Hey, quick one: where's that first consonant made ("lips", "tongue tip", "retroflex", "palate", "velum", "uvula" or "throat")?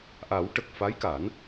throat